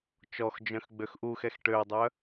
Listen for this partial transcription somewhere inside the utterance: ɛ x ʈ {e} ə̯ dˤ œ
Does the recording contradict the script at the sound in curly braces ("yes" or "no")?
yes